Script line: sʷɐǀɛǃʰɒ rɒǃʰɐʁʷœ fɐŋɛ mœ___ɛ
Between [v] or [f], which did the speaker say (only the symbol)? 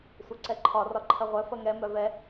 v